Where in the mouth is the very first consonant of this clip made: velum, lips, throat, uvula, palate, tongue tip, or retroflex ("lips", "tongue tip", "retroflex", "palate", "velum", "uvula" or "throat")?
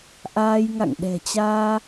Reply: throat